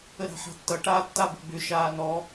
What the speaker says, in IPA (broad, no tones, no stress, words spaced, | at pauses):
əɾa̤ħa̤tːʌ ʈaːtːabə̤ɡ͡bʏ ʃaːnɔ